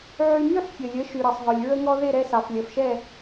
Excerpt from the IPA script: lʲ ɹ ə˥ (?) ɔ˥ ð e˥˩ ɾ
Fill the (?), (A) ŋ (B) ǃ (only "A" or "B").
A